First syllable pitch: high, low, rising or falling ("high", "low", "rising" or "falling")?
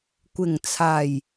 low